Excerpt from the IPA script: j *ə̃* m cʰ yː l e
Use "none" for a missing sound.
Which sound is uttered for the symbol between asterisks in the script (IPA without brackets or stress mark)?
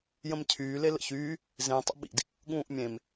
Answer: ə̃